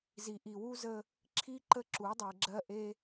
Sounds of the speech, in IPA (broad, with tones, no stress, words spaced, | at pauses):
zi˨ʔi˨wu˦ zə˦ | ǁʰi˦ǃə˦ ǁu˨˦dˤe˨ɡ͡ǁɜ˦ ʔe˦